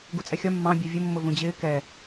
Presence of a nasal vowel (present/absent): present